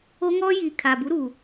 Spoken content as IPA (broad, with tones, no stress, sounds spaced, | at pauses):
o˦ ŋ ɔ˦ j i˨ kʰ a˨ b u˨˦ ɾ uː˨